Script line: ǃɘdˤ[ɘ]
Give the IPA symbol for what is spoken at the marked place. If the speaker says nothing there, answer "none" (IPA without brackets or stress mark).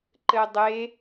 e